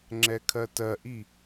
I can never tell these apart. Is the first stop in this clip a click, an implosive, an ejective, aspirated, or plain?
click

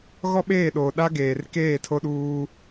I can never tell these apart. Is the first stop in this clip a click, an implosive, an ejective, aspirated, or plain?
implosive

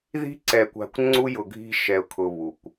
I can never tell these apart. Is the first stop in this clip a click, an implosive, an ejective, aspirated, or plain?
click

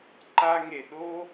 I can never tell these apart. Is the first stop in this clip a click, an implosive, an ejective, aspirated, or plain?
click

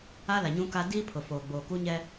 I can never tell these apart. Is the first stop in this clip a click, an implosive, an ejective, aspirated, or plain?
plain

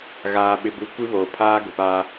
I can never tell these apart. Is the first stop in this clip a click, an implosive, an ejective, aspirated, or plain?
implosive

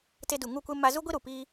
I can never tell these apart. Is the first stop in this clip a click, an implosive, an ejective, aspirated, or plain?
plain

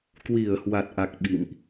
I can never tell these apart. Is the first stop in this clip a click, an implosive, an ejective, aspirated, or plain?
plain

